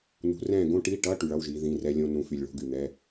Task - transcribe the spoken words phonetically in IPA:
nṳ˨˦rɛ̃ː˥˨ɡõ˥ ʈi˧˥˧ʈʌ˧˥˧ ʈy˨ɭʌ˧˥˧wʒiː˨˦ ðĩ˧˥˧rɛ˥lʲõ˥ nũ˨˦fy˨lʲɭo̤˧˥˧ɡ y˨n̪ɛ˧˥˧

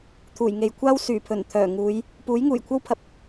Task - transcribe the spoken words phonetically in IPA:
t̪ʰuː˨˩jŋe˨jkʷʰaː˥w syː˨˩pʰɵ˨˩nt̪ʰœː˨˩ ŋuː˨˧j | puː˨˥jŋuː˨˩jkʷʰɐ˥wpʰɐ˨p̚

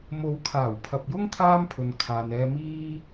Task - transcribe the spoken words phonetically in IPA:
mo˨˧wkʰaː˨˩wpʰɐ˨p̚jʊ˥ŋ t̪ʰaː˥mpʰɵ˨n kʰaː˨nɛː˧ miː˥

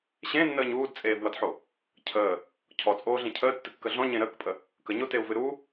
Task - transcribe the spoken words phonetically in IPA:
ɕẽnːəːɲ uːdt͡sʼeːvwʌdħo | cʰəː | cʰɔt͡sʼoːɮẽ cʰəːtːɨkːə ɮɔ̃ɲẽ ɾəːkpʼə | kəɲoteu̯vɨ ɾu

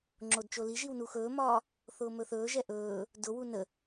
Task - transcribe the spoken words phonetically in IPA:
ŋ͡ǁodt͡ʃoliʒiw nuxɵːmɒː | θʊːmɵθɵːʒɛ ʔɵː | dʊwu nə

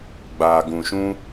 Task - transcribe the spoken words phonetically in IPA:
ɡ͡baː˨ɡũ˨ʃũ˦

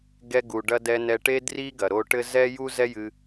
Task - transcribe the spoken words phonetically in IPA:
ɡɛ˧ɡu˩ɖɐ˧ dɛ˧nɛ˧ʈe˥ dri˥ɡɐ˩ɾo˧ ʈɘ˥ zɛ˥ju˥ zɛ˥jɨ˧

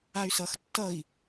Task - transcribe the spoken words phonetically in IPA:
ay̯sʌx tːʌi̯

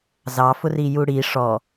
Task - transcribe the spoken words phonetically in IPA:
zɑ fʊrijuɽi ʂɔ

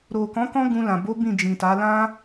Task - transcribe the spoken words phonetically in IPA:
ɾo˨kɔ̃˨˦ kɔ̃˦ɡũ˧lã˨ bo˨˦ bĩ˦˨d͡ʒĩ˨ta˨˦ lã˦

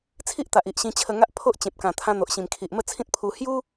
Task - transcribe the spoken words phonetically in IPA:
t͡sʰi˦ʔt̪a˨ʔ i˨ʔɕĩ˧ t͡ɕʰə˧ŋa˦ʔpʰo˦ʔ t͡ɕẽ˨p̚kã˨˩t̪ʰã˧ n̪o˨ʔɕĩ˨˩mkʰi˨ʔ mə˥˧t͡sʰĩ˦t̚pʰu˧ hju˦

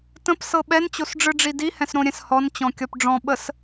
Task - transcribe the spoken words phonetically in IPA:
tə̃psɤ ɓɛnt͡ɕosɖ͡ʐɯɖ͡ʐi dihɛ̃sɾõɾʲɛ̃s hɔnt͡ɕɔ̃kʲɔp ɖ͡ʐɔ̃ɓəs

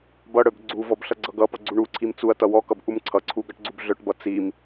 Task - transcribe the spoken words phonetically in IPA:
bʌɽœb ɡ͡ǀuvɔb ɬʌɡ͡ǀʌɡʌpʌ ɡ͡ǀuɳuǀʰim t͡suɐ̯ tʌwɔkʌb ʔumǀʰʌǀʰu ɡʌʈɡ͡ǀubɮœʈbʌ t͡sim

